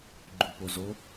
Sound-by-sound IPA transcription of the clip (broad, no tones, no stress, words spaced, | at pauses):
ɡ͡ǃupozo